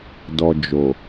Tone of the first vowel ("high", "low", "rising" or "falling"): low